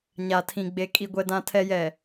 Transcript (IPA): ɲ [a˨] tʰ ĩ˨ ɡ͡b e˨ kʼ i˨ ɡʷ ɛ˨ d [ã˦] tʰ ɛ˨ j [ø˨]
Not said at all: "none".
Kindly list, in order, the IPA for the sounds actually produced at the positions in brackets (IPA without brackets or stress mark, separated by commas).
a˨, ã˨, ɛ˨